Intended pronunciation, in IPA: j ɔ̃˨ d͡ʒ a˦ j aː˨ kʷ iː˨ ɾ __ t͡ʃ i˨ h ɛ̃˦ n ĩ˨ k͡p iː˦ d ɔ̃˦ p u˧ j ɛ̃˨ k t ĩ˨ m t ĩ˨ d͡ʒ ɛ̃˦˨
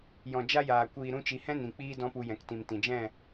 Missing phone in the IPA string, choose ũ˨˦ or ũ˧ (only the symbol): ũ˧